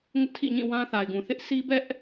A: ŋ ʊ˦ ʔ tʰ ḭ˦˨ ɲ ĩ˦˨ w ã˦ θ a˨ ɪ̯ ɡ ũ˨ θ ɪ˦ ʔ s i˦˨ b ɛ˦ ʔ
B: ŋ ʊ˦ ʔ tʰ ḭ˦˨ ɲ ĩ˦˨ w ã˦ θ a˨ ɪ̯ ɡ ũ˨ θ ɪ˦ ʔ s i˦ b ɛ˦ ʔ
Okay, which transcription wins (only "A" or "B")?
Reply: B